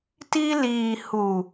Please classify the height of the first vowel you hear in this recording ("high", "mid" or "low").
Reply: high